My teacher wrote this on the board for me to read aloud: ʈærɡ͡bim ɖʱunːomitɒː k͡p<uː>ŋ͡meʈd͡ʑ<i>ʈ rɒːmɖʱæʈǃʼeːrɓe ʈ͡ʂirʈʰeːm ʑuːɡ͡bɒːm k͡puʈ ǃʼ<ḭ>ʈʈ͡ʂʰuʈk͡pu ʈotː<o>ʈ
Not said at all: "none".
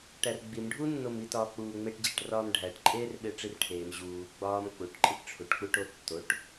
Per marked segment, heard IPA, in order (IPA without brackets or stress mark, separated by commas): uː, i, i, o